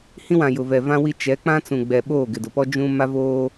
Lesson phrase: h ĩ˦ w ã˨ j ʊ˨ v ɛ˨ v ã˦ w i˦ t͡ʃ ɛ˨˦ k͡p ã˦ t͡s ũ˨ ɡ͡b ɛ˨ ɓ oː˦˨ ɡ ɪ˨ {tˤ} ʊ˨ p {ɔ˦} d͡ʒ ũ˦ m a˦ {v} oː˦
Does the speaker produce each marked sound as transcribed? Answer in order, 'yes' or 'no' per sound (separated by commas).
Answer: no, yes, yes